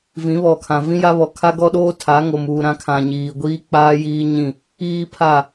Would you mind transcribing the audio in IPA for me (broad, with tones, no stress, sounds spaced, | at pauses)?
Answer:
v ĩ˨˦ β ɔ˨ kʰ ã˨ v ĩ˦ j a˦ β ɔ˨ kʰ a˦ ɡ ɔ˦ ɗ oː˦ tʰ a˨˦ ŋ o˨ m uː˨ ɾ ã˨˦ kʰ ã˨ ɲ iː˨ ɡʷ iː˦ k͡p aː˦ j iː˦ ɲ ĩ˦˨ | iː˦ pʰ a˦˨